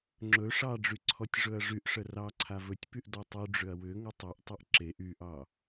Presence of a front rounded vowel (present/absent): present